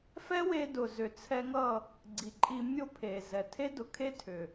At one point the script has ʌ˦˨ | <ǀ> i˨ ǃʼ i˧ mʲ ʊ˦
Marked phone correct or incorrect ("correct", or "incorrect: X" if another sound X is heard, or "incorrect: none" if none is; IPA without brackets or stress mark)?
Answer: incorrect: ɡ͡ǀ